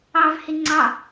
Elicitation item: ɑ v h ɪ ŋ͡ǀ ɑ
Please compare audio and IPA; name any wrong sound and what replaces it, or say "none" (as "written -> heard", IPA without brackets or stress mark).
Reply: none